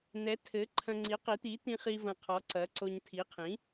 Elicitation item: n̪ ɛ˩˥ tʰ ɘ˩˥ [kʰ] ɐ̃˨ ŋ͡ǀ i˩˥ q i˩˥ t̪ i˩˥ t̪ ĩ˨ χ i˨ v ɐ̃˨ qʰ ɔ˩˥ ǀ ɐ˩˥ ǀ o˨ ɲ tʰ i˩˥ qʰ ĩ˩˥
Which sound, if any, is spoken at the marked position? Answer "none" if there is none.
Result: ǃʰ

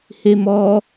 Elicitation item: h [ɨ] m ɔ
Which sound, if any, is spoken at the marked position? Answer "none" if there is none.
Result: e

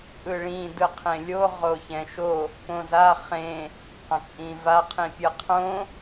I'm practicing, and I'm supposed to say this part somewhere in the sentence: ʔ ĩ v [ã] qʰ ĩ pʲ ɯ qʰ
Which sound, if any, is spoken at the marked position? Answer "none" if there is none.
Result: a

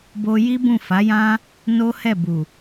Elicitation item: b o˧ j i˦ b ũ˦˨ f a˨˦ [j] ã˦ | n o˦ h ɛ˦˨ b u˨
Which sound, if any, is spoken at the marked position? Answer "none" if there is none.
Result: j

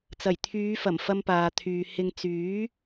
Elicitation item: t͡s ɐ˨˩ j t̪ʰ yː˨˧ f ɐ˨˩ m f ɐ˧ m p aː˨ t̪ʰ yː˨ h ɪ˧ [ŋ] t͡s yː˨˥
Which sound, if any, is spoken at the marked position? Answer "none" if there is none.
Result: ŋ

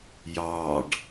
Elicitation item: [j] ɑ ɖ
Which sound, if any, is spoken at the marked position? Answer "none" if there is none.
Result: j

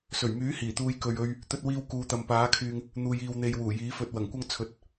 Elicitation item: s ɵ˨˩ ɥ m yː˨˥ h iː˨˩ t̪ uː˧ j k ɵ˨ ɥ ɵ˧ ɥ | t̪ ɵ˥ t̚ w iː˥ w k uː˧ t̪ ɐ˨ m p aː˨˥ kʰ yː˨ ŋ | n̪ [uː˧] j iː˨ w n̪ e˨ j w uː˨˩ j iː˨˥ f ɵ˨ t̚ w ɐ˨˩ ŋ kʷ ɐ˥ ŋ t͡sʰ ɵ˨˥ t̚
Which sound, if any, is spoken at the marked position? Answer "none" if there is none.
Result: uː˨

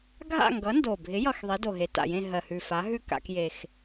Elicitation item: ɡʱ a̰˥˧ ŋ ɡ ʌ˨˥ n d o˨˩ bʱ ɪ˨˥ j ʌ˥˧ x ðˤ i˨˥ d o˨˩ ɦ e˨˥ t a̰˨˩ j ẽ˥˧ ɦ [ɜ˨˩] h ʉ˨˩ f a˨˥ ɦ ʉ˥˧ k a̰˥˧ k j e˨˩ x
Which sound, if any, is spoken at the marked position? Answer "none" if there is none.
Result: ɜ˨˩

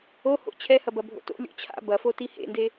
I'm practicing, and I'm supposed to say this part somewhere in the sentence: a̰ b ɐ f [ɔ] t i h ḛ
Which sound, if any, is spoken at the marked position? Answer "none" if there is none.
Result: o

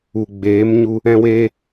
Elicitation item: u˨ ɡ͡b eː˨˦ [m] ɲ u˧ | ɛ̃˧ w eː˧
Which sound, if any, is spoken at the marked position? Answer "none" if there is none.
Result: m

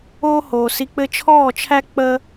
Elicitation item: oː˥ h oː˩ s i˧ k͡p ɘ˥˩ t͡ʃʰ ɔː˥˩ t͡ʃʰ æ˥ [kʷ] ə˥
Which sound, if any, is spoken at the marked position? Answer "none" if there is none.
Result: k͡p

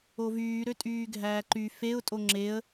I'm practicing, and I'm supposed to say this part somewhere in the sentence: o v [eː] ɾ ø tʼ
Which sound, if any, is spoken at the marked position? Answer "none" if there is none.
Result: yː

